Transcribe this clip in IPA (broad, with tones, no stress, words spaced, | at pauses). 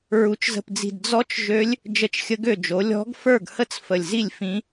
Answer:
ɹu˩˥t͡ʃzə̤˨˩pd͡zi̤˨˩d d͡zɔ˧˥t͡ʃ ʒø˧˥lʲ | d͡ʒə˧˥t͡ʃxʲə˧˥ɡø˥˩d͡ʒo˩˥ lʲɔ̤˧˥ɡ fə˞˥˩ɡhə˥˩t͡s fə˨˩lʲzi˥˩lʲ fĩ˧˥